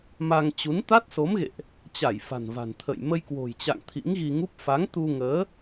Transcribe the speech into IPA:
m a˧ ŋ t͡ɕ u˨˦ n t̪ a˦˥ t̚ s o˨˦ m ɣ ḛ˧˨ ʔ | t͡ɕ a˧˩ j f a̤˨˩ n v a̤˨˩ n t̪ʰ ə̰˧˨ j m ə˧ j k w o̤˨˩ j t͡ɕ a̰˧˨ ŋ t̪ʰ ḭ˧˥ ŋ ɣ i˧ ŋ u˦˥ p̚ f a˨˦ ŋ t̪ u˧ ŋ əː˨˦

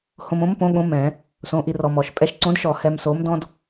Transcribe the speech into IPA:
h õ˧ m õ˨˥ m p õ˨˥ ɠ õ˧˥˧ m ɛ̃˧˩˧ | s õ˧˥˧ ʔ i˥ r ɔ˧ m ɔ˧˩˧ ʃ pʼ ɛ˧ ʃ ǀ õ˨˥ d ʃ ɔ˧˩˧ h ɛ˧ m s o˨˥ m d ɔ̃˥ d

